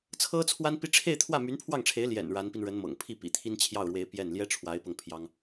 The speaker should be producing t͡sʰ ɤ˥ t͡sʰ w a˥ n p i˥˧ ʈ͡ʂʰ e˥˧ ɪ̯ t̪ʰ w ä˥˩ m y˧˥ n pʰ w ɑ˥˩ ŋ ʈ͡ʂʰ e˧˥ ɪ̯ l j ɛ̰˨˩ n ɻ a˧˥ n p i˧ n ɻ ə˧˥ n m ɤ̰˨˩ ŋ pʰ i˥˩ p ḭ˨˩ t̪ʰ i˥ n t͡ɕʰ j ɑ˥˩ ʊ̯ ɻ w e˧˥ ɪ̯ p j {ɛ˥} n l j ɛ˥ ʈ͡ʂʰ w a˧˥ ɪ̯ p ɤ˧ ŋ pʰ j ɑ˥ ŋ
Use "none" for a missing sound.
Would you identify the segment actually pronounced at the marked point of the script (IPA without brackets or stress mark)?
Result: ɛ˥˩